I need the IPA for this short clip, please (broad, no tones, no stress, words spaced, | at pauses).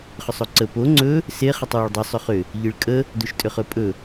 χʏsˤoǀə po ŋ͡ǀɵ | se χətˤwoɭdˤosˤ ʏχʏ | ʎiɭkʼə | doʃtʼʏχɵpʼɵ